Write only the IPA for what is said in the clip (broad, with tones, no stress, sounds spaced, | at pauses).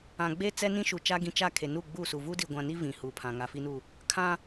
ã˨ ɡ͡b e˦ t͡s ɛ˦ n ĩ˦ ʃ u˨ t͡ʃ a˦ ɡ ĩ˨ t͡ʃ a˦˨ kʰ e˨ n u˦˨ ɡ͡b uː˦˨ s u˨ v uː˦ d i˨ ɡʷ ã˨ n i˦ v ĩ˨ h uː˨ pʰ ã˨ ŋ a˨ f i˦ n u˦˨ | kʰ ã˦